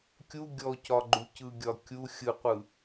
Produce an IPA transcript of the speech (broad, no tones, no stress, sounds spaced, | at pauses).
kʲ u ɡʲ ɔ c ɒ ɡ͡ǃ u c ɯ ɡʲ ɒ kʲ u xʲ ɯ qʷ ɯ